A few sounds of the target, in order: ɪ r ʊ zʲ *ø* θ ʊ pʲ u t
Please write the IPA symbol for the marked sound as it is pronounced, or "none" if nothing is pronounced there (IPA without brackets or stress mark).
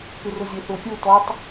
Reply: ø